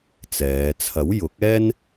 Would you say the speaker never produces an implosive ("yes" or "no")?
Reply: yes